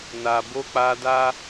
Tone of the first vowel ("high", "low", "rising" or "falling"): low